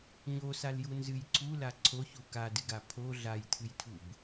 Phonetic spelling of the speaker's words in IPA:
ɲ o s a l j u n z ɨ j ǀʰ u l a ǀʰ o ç u k a d ɨ ɡ a pʰ o ɮ a j tʰ ɨ j tʰ u b

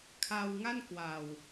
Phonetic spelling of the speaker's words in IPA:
kʰ a˧ w ŋ a˥˩ n k w a˨˩ w

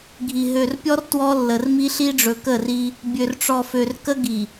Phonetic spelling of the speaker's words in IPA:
ɡʱ i˨ ɦ ø˨ r pʲ ɔ˦ r t w ɔ˦ lː ə˨ r m i˦ ɬ i˦ ɖ͡ʐ ɵ˨ k ə˦˨ r i˦ | bʲ ø˨ r ʈ͡ʂ ɔ˨ f ø˨ r k ə˦ ɡ i˨

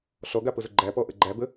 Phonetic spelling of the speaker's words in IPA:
ɬ ɔ ɡ a p ʊ z ʊ ɡ͡ǃ æ p ɔ ʔ ə ɡ͡ǃ æ b ə

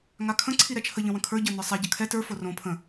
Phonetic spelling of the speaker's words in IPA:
ŋ a kʰ ə̃ ǀʰ i ɾ ɛ t͡ʃʰ ə ʎ ə̃ w ə̃ kʰ ə˞ ɟ ə˞ n ə˞ sˤ ɛ ɟ ə kʰ ɛ t ə˞ f o r õ pʰ ə̃

